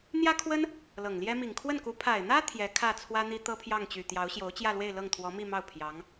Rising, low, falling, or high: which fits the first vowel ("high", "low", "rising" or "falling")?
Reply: high